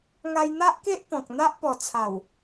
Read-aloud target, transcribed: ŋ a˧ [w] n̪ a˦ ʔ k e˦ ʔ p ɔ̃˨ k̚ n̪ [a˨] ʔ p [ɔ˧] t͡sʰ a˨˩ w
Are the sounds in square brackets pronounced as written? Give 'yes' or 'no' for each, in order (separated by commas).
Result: no, no, no